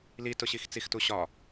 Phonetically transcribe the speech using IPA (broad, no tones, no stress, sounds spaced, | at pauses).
l i t ʊ ɕ i x t͡s i x t u ɕ ɒ